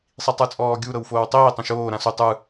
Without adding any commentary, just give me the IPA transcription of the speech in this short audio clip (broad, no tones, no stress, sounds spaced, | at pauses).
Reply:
sˤ i tˤ ɯ t͡sʼ ɔː ɡʲ u ɾ ɤ w f oː w tˤ iː tˤ ɛ̃ ʃ oː ɾ ã s u tˤ ɯ